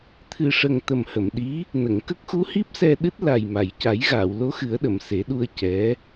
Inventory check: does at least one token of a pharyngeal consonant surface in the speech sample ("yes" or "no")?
no